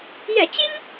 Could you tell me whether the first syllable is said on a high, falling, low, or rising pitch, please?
low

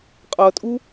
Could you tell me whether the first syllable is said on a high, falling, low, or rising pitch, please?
low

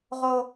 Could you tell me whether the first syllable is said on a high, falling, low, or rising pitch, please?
high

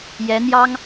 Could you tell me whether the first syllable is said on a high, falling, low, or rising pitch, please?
rising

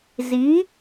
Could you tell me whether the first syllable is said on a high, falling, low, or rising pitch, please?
rising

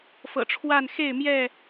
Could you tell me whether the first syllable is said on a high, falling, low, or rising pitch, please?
low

